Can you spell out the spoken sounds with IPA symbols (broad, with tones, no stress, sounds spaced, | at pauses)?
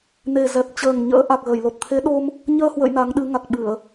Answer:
n e˨˩ z ɛ˨˩ p̚ t͡ɕ əː˨˩ ŋ ɲ ə̰ː˧˥ ʔ a˨˩ k̚ ɣ ə˧˩ j l o˨˩ t̚ t̪ʰ e˨˦ ɗ o˧ m | ɲ əː˧ h w ə̰ː˧˨ j n a˨˦ ŋ ɗ ɨ˨˦ ŋ a˨˩ k̚ ɓ ɨ˧˩˨ ə̯